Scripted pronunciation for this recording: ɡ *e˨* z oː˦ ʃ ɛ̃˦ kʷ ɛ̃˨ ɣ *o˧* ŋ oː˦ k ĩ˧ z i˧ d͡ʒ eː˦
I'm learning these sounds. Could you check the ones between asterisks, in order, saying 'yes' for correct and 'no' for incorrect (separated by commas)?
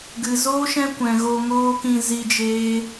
no, yes